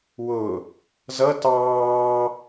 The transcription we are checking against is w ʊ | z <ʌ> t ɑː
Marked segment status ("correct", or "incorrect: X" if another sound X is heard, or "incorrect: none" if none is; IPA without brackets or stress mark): correct